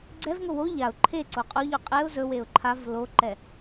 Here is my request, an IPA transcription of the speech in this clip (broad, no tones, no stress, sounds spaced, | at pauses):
ɡ͡ǀ ɛ v ŋ o w o ʎ a ʊ̯ ǃʰ e ǀ o qʼ o ʎ o qʼ e ʊ̯ z ɵ w e ʊ̯ ǃʰ a v l o ǃ ɛ